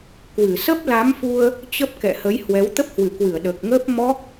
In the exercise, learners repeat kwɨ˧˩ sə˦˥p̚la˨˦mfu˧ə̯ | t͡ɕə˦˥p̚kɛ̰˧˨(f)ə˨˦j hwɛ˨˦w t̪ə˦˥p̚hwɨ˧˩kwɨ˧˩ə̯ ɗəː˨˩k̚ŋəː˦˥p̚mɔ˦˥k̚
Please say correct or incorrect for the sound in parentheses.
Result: incorrect